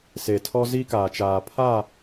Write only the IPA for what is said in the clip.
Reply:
s e˨ tʰ ɔ˦ z i˦ k aː˨ t͡ʃ aː˨ pʰ a˦˨

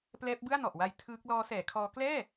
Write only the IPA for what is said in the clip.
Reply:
p l ɛː˦˥ p̚ b ɯ˥˩ a̯ n ɔ˨˩ ʔ w a˧ j tʰ ɯː˦˥ k̚ l ɔː˦˥ s ɛː˩˦ kʰ ɔː˦˥ k l ɛː˥˩

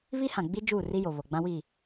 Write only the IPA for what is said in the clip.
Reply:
β i˦ h ã˨ ɡ͡b i˦ d͡ʒ uː˦˨ r i˦ j o˨ β o˨ ɡ͡b ã˦ w iː˦˨

